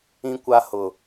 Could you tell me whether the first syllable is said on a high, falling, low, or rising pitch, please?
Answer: high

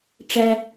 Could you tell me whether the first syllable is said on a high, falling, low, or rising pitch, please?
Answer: low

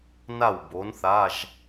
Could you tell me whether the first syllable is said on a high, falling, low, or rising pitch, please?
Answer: falling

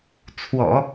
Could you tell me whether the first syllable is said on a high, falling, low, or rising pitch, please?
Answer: low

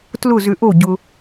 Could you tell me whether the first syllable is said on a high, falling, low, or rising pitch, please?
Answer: falling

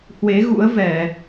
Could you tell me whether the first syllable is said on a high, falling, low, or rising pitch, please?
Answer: rising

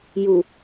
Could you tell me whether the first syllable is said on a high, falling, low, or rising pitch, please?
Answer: low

